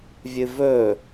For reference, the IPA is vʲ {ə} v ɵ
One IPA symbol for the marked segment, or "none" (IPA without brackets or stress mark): ɨ